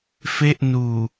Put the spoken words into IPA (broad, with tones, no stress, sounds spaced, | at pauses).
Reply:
f e˥˩ ʔ n uː˨˩